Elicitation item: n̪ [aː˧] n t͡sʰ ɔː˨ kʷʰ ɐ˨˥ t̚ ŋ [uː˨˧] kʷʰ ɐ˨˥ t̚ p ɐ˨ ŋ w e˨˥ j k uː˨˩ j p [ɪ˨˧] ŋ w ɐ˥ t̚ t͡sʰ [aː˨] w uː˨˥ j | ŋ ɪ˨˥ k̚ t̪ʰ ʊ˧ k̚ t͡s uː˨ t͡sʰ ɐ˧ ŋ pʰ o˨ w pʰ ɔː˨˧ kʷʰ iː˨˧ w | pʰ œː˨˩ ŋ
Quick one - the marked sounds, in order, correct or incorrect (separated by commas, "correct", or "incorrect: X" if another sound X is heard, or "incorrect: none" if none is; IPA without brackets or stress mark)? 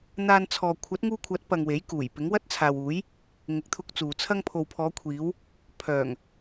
correct, incorrect: uː˧, incorrect: ɪ˨˥, correct